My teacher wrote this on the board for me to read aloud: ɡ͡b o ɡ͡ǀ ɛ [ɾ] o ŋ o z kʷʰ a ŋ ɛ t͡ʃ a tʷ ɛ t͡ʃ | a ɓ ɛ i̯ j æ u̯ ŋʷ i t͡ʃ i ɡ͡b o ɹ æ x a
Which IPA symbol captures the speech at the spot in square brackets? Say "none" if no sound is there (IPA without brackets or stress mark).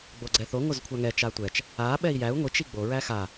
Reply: θ